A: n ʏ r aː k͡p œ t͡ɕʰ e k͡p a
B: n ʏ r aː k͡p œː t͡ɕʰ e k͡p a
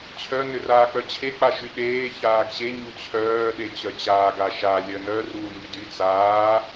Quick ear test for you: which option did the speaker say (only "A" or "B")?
A